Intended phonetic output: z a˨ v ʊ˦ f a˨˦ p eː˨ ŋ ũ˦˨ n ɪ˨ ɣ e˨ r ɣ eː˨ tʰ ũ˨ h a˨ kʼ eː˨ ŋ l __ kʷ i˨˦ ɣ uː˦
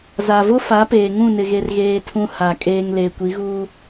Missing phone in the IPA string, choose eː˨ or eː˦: eː˨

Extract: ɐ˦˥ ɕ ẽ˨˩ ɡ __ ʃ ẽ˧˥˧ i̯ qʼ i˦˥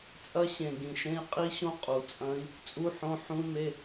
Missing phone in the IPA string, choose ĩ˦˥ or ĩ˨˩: ĩ˨˩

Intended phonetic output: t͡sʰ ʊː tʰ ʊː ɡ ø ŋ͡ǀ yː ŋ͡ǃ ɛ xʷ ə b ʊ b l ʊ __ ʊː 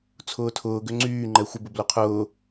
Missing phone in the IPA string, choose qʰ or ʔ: qʰ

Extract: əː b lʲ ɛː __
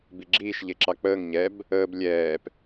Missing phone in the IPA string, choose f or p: p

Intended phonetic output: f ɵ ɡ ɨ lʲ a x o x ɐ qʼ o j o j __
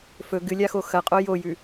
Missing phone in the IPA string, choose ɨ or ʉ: ʉ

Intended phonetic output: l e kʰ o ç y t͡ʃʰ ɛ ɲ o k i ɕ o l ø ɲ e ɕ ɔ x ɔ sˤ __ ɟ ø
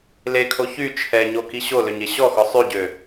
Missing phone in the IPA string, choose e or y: y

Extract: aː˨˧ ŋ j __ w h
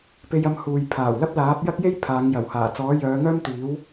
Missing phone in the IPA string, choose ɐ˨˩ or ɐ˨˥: ɐ˨˩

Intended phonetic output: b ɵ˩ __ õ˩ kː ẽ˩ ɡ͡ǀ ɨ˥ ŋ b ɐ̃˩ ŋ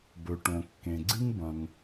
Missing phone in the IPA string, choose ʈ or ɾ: ʈ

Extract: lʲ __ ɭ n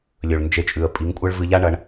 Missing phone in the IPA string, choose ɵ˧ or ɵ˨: ɵ˨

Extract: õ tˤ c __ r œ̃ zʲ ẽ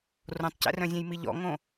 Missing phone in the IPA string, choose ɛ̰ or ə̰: ɛ̰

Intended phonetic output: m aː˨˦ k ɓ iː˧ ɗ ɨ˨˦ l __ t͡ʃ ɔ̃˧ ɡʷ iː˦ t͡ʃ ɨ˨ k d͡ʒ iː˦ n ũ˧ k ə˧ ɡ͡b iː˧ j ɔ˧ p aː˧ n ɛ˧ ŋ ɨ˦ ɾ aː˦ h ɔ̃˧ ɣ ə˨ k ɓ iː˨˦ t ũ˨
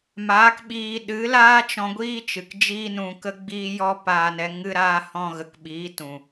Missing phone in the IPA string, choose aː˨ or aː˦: aː˦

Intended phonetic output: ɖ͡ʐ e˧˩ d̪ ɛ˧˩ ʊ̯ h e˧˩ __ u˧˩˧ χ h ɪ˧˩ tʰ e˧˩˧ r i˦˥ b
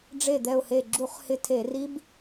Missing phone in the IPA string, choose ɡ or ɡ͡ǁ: ɡ͡ǁ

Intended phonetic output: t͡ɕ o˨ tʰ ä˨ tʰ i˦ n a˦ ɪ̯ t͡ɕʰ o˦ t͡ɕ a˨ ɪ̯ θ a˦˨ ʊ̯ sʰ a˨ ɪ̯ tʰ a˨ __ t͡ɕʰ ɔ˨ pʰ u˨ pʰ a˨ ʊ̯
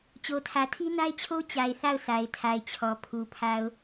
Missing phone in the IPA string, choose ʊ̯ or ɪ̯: ɪ̯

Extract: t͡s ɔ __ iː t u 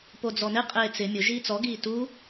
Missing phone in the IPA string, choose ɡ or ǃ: ɡ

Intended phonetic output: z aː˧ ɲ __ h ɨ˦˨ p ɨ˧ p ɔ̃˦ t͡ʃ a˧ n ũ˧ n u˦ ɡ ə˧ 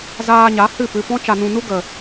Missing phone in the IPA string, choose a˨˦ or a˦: a˨˦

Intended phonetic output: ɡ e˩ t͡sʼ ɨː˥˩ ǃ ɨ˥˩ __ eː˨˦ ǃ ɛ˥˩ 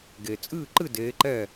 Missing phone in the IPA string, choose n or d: d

